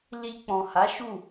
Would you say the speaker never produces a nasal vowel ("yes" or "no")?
no